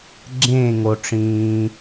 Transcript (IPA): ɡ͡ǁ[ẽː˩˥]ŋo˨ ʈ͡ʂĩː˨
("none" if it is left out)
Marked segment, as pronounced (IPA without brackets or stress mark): ẽː˦˨